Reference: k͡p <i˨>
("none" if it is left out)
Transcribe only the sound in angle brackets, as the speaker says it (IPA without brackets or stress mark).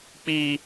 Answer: i˦